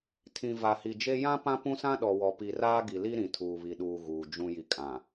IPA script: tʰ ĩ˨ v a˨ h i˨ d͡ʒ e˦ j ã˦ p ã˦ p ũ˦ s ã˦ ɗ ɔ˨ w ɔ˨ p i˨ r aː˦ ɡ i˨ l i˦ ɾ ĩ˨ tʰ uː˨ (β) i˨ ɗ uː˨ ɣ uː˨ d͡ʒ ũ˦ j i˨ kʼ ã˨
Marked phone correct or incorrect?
correct